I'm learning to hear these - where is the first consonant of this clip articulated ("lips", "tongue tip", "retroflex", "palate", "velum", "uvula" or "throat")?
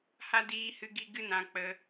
throat